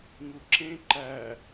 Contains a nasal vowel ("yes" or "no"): yes